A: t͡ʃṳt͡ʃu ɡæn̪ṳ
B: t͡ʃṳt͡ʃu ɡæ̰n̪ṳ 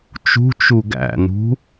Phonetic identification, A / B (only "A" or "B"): B